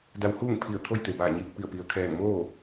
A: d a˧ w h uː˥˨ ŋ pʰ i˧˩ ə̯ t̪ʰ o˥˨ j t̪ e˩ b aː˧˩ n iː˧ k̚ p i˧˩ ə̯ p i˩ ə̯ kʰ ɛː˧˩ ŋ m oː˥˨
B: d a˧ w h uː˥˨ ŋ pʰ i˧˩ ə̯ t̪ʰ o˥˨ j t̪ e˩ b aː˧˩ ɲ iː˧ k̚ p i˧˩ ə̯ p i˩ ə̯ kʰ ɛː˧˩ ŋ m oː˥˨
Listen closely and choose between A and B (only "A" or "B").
B